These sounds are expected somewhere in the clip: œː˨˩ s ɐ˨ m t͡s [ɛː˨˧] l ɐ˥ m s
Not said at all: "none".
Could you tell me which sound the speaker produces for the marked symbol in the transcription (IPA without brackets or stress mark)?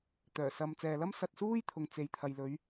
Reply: ɛː˨